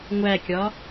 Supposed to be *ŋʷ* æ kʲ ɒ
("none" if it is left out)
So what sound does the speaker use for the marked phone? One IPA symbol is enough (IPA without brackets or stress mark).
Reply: ŋʷ